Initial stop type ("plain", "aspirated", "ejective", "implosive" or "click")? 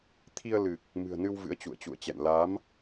aspirated